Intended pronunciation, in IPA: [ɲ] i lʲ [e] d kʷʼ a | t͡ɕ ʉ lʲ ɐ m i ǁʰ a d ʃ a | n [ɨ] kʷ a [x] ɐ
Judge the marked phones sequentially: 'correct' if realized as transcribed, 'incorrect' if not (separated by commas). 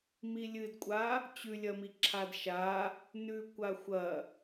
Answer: incorrect, incorrect, incorrect, incorrect